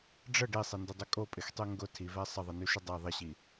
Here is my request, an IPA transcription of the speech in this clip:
ɖ͡ʐ ə ɖ i sˤ i n d ɪ dˤ y kʼ o pʼ ɪ x tˤ y ŋ ɡ ʊ tʰ i v ɛ sˤ ə ðˤ i n y ʃ ɪ dˤ ɛ ðˤ ɪ ɕ i

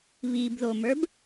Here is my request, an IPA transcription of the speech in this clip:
β i b ð o m ə˞ b

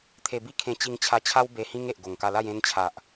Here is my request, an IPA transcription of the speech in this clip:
t̪ʰ e˧ b i˦ kʰ ẽ˧ t͡ɕ i˧ ŋ t͡ɕʰ a˧ t͡ɕʰ a˦ w b e˧ h ĩ˦ ŋ e˨ ʔ ɡ o˨˩ ŋ k a˧ l a˥˧ j ẽ˧ n t͡ɕʰ a˨ ʔ

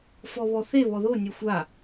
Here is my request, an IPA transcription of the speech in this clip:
f ɔ β ɔ θ e β ɔ ð o nʲ ø xʷ a

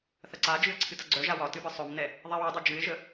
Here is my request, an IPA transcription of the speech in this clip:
θ ɐ ǀ a d͡ʒ ɨ ə̯ ǀʰ ɨ t ɐ ɡ͡ǀ œ ʒ a w ɒ t ɨ b ɨ sˤ œ m n ɛ | ðˤ ɛ w ə dˤ œ d͡ʒ ɨ ɪ̯ ʒ ə

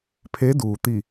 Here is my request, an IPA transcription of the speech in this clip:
pʰ e˧˥ d uː˩ t̪ i˧˩

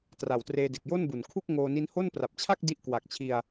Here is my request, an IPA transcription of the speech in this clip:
t r a˨˩ w t r eː˧ d e˨˩ k̚ j o˥˩ n b u˨˩ n kʰ u˥˩ k̚ ŋ oː˧ n i˦˥ n h o˥˩ n p r a˨˩ p̚ t͡ɕʰ a˥˩ k̚ d i˦˥ ʔ k w a˨˩ k̚ t͡ɕʰ i˧ a̯

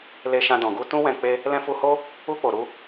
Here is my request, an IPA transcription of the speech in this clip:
l e˧ ʃ ã˧ d ɔ̃˨ ɡ u˧ t ũ˦ w ɛ̃˧ k͡p e˦ | l ɛ̃˧ f u˧ h o˦ | u˧ k͡p o˨ ɾ u˧

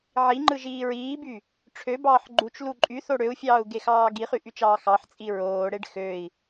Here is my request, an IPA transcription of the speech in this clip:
ʕ i ŋ͡ǃ ɯ ʒ iː ɹ iː b y | ʈ͡ʂʰ ø b ɑː ħ ɡ͡ǃ u t͡ʃ l u ǃʼ y θ o ɽ ø u̯ fʲ ɑː u̯ ɡ e x ɑː ɡ i χ y ʔ y t͡ʃ ɑː x ɑ ħ t͡sʼ i ɹ oː ɽ e ɖ x ø i̯

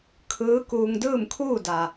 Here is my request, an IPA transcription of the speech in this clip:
kʰ ɯː˧˥ k uː˧ ŋ d ɯː˥˨ m kʰ uː˥˨ d a˩

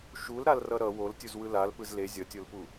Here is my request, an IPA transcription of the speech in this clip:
ʃ u l ɾ a l r ʌ ɾ ʌ w o l tʲ u z w ɯ l a l p ɯ z l e zʲ ʌ tʲ o l p u

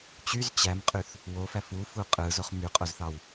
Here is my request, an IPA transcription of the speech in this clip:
t͡ɕ y z t͡ɕ æ m qʼ y θ | w o f æ f u f u qʼ ɯ z o χ m y qʼ o z θ ɑ w

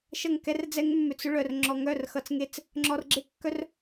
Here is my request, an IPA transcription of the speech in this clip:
ʃ ʌ˦˨ ŋ k ɛ˦ r d͡z ɛ˦ ŋ mː ʏ˧ t͡s ʏ˧ ɭ œ˨ r ŋ͡ǁ ɔ˨ ŋ œ˦˨ r x ʌ˨ t͡s ŋ e˦˨ t͡s | ŋ͡ǁ ɔ˧ r ɡ͡ǁ e˦ kː œ˦ r

